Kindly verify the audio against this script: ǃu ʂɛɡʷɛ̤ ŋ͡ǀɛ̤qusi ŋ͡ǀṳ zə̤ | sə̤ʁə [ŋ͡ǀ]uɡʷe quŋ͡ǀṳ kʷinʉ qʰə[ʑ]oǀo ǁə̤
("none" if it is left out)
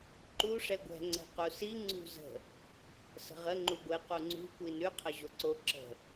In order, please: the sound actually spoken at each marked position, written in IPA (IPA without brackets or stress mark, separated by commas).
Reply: ŋ͡ǃ, ʑ